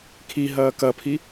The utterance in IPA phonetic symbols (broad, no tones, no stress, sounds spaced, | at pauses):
kʰ i ɦ ɐː k ɐ pʰ i